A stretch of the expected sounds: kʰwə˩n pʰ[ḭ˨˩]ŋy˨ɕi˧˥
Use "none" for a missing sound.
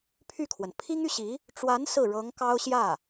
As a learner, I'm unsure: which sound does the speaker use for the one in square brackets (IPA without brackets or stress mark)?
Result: i˥